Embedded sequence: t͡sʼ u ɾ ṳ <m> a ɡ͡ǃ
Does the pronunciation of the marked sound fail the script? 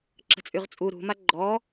no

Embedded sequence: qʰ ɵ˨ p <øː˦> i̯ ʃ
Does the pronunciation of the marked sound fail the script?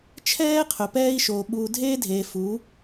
yes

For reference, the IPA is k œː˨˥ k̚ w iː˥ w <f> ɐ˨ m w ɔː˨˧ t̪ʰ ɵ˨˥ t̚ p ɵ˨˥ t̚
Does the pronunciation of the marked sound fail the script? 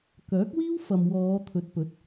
no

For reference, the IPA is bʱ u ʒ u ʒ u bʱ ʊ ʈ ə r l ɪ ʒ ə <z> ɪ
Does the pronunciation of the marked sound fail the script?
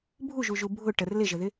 yes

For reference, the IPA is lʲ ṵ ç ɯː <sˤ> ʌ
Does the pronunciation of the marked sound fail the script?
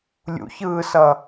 yes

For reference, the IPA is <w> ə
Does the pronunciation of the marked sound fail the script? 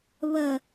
yes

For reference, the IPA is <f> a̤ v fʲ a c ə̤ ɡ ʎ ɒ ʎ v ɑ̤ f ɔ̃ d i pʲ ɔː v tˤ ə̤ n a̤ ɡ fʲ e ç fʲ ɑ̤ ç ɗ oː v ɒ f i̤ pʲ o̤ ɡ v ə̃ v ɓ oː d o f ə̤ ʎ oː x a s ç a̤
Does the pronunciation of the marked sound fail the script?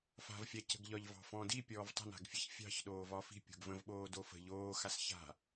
no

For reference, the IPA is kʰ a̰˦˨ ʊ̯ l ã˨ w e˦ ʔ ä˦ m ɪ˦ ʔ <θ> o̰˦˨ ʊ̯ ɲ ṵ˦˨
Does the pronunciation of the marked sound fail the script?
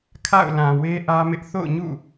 no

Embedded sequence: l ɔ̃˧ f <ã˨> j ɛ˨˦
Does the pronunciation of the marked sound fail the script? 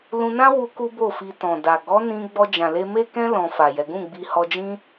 yes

